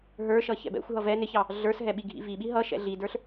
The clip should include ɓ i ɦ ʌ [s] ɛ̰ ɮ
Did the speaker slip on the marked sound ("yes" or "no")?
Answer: yes